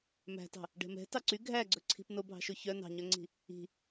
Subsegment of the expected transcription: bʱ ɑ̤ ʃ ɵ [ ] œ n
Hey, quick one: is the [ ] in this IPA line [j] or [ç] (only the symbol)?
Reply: ç